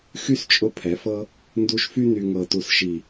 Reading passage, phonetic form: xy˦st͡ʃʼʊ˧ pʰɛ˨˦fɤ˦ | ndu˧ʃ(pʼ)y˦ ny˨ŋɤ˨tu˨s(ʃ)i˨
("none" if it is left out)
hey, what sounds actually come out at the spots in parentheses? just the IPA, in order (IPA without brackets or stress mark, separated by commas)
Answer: f, ʃ